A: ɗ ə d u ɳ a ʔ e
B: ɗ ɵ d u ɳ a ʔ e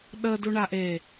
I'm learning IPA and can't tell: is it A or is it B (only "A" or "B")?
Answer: A